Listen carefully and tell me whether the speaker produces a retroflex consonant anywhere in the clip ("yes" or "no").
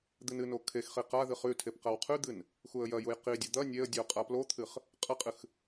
no